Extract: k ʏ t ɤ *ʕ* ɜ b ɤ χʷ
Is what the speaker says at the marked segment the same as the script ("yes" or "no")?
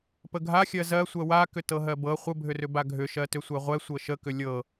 no